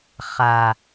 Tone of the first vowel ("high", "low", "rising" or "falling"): low